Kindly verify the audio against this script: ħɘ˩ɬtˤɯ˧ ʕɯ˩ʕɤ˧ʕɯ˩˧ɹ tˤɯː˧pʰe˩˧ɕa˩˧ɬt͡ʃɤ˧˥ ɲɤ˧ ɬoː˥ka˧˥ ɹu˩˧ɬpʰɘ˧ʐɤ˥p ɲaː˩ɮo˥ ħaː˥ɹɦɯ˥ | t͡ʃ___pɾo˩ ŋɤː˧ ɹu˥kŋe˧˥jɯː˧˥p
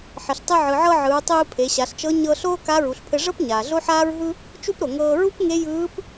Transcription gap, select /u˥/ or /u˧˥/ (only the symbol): u˥